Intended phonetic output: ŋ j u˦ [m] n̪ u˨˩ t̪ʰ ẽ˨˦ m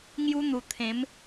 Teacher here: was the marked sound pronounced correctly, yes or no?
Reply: no